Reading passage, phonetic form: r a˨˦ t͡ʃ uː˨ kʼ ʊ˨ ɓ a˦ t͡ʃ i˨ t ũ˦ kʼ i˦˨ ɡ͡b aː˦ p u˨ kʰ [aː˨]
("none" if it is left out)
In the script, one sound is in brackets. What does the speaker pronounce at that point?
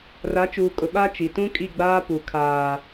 aː˨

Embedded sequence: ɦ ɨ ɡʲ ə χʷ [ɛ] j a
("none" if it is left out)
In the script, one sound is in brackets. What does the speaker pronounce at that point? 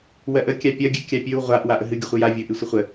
ɨ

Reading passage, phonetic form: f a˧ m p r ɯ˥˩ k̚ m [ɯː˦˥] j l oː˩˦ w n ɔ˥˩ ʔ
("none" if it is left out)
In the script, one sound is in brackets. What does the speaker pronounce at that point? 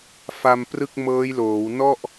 ɤː˦˥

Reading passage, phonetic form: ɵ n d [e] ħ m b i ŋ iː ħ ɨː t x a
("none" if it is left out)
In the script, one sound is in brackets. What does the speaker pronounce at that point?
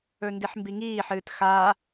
i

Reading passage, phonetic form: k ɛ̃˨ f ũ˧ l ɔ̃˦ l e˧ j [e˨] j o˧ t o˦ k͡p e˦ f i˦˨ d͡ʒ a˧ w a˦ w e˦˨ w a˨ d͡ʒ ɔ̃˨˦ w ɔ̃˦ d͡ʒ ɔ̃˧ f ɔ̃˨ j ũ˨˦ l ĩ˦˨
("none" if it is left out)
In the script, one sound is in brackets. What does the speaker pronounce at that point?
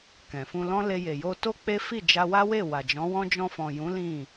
e˨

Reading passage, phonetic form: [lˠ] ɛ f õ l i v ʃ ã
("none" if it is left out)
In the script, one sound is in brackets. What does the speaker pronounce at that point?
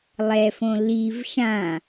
lˠ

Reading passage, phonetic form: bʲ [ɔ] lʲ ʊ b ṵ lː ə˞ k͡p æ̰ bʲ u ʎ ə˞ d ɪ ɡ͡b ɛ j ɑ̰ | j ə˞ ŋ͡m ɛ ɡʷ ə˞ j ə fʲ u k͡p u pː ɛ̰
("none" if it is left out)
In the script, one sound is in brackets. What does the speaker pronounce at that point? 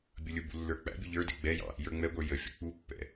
ʌ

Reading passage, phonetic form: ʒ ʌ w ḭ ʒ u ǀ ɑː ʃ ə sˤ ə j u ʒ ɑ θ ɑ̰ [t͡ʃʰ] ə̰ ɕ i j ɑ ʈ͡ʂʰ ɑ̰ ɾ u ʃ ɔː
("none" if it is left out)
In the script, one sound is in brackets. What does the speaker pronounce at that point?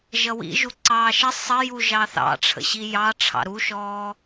ʈ͡ʂʰ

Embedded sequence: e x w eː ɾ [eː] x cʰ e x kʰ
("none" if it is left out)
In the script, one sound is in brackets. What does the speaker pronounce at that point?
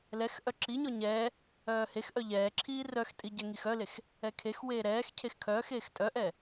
ɛː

